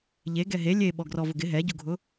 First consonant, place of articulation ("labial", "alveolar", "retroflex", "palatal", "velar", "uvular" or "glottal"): palatal